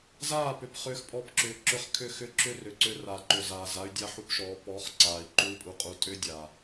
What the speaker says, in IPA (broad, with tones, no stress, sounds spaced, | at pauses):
z aː˦˨ p ʏ˨ p χ ʏː˧ x pʼ ɔ˧ p ǁ ʏː˨ ǁ ʏ˧ χ kʰ ʏ˦˨ x ʏ˦˨ ǁ ʏ˦ r ʏ˨ ǀ ʏ˧ r a˨ ǃ ʏ˨ z aː˨ z a˦ y̯ dʲ a˦ ħ u˦ p ʃ ɔː˨˦ p ɔ˨˦ χ ǀ aː˨ i̯ ǃ u˦ i̯ pʼ u˧ qʼ u˧ tʼ ʏː˦ dʲ a˨